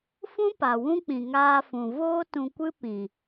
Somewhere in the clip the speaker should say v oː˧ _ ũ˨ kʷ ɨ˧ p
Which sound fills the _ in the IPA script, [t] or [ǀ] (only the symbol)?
t